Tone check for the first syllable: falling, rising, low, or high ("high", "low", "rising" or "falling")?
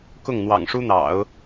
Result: falling